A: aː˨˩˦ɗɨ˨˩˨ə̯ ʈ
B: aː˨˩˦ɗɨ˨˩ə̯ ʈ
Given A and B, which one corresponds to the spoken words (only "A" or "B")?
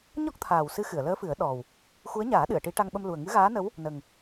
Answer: A